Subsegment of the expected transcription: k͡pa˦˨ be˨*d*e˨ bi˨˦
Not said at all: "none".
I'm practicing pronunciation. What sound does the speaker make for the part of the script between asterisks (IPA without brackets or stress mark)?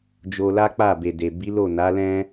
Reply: d